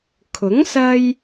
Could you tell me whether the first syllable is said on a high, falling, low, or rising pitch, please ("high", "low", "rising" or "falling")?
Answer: rising